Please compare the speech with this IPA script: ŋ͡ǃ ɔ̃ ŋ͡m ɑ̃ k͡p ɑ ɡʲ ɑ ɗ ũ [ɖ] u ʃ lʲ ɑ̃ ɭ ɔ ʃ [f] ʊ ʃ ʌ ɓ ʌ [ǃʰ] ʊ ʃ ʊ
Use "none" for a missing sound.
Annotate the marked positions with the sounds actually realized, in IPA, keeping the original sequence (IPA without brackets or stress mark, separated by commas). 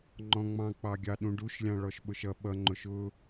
ɖ, ɓ, ŋ͡ǃ